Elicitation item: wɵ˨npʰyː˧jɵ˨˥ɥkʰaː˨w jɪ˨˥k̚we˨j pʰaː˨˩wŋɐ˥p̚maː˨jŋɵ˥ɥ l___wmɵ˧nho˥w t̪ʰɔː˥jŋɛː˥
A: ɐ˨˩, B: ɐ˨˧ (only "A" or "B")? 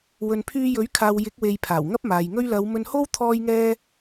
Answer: B